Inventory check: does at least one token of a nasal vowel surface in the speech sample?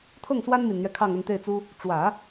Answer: no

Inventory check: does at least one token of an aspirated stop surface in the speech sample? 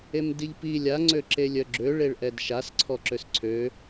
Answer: yes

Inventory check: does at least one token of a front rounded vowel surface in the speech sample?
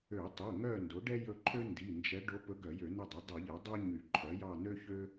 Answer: yes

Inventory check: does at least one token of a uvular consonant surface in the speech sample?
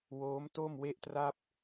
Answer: no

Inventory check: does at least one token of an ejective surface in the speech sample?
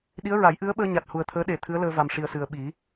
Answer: no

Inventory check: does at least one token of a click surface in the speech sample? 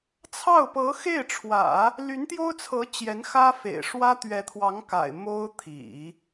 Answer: no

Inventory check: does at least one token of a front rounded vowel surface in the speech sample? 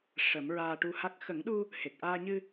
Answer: no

